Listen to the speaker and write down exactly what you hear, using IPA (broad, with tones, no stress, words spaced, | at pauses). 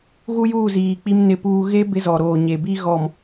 ɣu˦juː˦˨ziː˨ k͡pi˦mnɪ˦˨puː˦ ɣe˦ bɪ˦zɔ˨ɾoː˨ ɲe˨ bi˦ɣɔ˨m